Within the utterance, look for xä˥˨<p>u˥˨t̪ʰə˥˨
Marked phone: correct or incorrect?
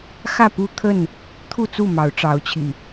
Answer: correct